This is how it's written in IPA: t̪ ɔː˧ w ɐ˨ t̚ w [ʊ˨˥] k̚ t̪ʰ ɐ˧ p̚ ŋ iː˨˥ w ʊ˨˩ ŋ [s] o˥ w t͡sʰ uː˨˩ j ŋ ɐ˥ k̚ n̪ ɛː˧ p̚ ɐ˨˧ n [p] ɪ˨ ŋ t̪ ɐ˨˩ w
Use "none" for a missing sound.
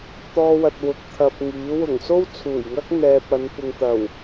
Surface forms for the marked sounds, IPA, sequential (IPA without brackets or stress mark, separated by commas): ʊ˨, s, p